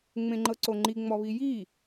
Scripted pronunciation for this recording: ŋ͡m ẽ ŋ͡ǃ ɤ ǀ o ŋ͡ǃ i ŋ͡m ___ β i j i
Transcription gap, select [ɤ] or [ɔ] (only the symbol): ɔ